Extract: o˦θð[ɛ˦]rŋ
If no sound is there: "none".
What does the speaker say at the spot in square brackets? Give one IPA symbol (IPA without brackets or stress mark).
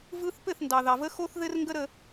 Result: ɘ˦